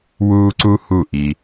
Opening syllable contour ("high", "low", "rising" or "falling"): high